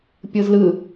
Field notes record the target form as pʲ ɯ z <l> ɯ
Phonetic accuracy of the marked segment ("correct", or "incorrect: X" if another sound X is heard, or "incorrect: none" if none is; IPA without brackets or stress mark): correct